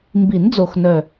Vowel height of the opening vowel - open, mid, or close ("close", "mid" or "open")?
close